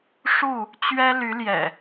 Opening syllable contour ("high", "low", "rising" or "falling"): falling